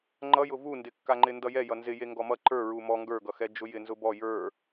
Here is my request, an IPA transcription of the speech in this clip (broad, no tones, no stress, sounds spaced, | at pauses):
ŋ͡ǃ ʌ j ʊ v u n d ɪ kː a ŋ͡ǃ ɪ n d ʌ j ɛ j ʌ n z ɪ j e ŋ ɡ ɔ m ʌ ǃ ə˞ ɹ u m ɔ ŋ ɡ ə˞ ɡ ʌ x ɛ d͡ʒ ʊ j ɪ n z ʊ b ɔ j ə˞